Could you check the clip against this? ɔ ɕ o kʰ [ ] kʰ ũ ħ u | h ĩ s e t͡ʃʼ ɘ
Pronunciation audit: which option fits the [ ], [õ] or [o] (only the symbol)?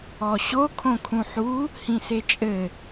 õ